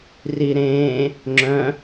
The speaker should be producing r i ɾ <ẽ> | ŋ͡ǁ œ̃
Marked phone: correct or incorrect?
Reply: incorrect